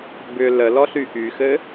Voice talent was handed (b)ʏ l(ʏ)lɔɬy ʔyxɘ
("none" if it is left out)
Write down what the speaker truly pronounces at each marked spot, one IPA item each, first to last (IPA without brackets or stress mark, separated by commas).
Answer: b, ə